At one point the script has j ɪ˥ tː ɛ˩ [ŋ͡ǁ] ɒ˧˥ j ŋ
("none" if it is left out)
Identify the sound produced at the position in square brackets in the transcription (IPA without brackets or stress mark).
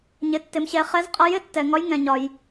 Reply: ŋ